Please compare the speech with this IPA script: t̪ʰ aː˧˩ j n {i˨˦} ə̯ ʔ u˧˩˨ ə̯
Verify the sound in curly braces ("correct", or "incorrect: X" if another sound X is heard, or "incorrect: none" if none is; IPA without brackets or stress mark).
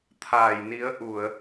correct